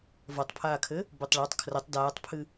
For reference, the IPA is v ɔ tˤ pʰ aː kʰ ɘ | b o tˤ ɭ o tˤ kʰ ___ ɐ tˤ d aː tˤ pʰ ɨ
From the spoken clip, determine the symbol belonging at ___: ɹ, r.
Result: r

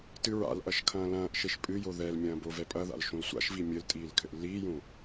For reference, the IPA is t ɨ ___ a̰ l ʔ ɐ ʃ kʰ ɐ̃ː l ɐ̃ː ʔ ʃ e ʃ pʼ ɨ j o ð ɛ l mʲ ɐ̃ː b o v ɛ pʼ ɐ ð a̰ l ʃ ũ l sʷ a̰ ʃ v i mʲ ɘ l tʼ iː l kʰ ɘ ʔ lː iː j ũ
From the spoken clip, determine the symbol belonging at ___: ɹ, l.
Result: ɹ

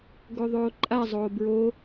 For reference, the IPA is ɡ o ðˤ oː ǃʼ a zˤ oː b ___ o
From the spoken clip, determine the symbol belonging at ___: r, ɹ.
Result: ɹ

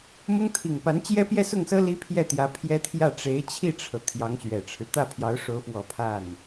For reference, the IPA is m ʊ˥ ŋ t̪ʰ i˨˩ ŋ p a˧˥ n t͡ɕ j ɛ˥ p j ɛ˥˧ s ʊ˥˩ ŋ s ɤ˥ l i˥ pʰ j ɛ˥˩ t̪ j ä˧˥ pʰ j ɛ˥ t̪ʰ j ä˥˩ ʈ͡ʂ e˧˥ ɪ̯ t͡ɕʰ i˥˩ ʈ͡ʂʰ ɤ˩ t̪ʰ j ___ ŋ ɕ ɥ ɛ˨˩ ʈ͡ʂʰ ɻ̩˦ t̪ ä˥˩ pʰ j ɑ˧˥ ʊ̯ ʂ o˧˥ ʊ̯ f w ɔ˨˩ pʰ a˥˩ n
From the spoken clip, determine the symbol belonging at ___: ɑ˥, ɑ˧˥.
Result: ɑ˧˥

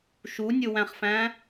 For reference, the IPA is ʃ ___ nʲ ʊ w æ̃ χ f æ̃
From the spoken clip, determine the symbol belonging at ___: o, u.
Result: u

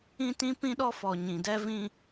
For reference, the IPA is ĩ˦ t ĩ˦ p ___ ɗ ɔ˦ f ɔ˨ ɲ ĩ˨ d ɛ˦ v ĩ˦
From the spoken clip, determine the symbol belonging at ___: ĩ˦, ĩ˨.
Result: ĩ˦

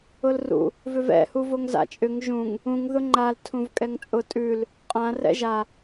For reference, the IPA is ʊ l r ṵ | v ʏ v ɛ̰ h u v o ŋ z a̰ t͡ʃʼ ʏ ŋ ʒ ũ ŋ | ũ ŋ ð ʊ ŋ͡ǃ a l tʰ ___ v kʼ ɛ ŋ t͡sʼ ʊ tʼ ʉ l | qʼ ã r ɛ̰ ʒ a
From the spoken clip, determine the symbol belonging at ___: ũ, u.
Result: ũ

